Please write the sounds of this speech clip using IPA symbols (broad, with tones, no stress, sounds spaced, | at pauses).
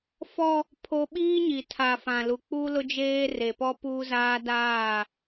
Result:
f ɔ˦ | pʰ o˦ ɓ iː˦ ɲ i˨ tʰ a˨ f ã˨ l u˨ k͡p uː˦ l ʊ˦ d͡ʒ eː˦ r e˨ p ɔ˦ p uː˦ z aː˦ d aː˦˨